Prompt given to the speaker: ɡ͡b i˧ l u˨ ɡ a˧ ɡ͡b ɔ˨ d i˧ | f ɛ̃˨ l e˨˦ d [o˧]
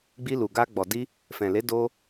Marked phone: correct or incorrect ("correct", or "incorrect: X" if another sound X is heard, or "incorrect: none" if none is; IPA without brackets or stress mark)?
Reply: correct